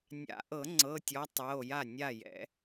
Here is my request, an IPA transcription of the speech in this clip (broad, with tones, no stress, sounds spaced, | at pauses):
nʲ a̰˨˩˦ ʔ ɤ˨˩˦ ŋ͡ǀ ɤ˩˧˩ tʲ ɔ˨˦ tˤ ɤ˩˧˩ o̯ j a˥˩ nʲ a˥˩ j ɛ̰˨˩˦